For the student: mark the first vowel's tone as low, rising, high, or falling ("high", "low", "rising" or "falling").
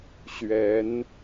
rising